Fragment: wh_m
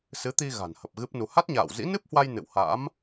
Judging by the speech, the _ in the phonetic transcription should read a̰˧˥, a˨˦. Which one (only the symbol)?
a̰˧˥